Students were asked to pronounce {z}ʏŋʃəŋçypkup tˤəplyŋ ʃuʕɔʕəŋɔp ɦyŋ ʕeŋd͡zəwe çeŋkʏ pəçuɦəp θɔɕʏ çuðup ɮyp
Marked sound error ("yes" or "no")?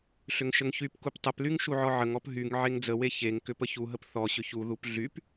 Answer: yes